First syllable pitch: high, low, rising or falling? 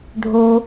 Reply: high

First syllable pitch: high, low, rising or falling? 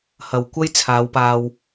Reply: low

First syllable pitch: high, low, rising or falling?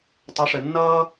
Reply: rising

